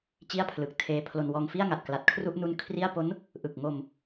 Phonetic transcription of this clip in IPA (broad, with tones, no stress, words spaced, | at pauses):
t͡ɕi˥˩a̯pʰlɯ˨˩k̚tʰeː˦˥pʰlo˧n wɔː˧ŋ fi˥˩a̯ŋa˨˩t̚kla˨˩t̚ kʰru˥˩ʔnu˦˥n kʰri˥˩a̯ po˦˥n | ʔɯ˨˩k̚ŋo˧m